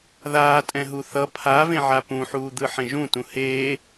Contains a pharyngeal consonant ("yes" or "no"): yes